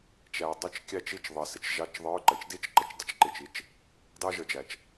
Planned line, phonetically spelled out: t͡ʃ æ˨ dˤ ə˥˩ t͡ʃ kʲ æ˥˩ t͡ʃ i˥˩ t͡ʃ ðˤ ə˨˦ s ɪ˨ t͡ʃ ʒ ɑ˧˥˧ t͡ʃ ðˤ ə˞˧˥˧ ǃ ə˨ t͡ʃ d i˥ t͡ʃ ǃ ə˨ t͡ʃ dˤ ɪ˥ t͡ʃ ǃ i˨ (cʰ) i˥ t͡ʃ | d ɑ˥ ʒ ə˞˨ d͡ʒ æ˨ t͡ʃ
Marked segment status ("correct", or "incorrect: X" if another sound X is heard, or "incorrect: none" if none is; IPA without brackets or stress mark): incorrect: t͡ʃ